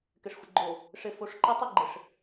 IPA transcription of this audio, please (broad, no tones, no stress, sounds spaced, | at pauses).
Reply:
k ɘ ʂ xʷ ə ɡ͡ǃ o | ʂ ɘ f o ʂ ǃ ə tˤ ɘ ɡ͡ǃ ɘ ʂ